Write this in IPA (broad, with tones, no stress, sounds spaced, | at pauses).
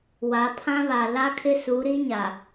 w a˨˦ pʰ ã˦ β a˨ l a˦ kʰ ɪ˦ s u˨˦ ɾ i˦ ɲ a˨